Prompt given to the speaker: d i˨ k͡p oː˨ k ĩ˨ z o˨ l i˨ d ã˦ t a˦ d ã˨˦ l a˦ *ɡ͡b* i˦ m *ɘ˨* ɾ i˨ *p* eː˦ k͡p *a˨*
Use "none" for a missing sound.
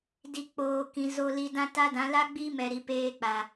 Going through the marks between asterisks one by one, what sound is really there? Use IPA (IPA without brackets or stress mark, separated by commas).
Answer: ɡ͡b, ɛ˨, p, a˨